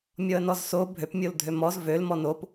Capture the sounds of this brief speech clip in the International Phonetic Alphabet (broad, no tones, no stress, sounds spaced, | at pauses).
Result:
mʲ ɔ ə̯ n ɔ z s o bʱ ø p mʲ o l dʱ ø m ɔ z v ø l m ɔ n o p